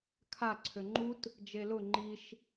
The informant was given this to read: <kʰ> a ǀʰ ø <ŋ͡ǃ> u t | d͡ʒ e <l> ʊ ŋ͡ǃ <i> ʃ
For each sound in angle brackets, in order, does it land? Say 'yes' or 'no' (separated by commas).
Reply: yes, yes, yes, yes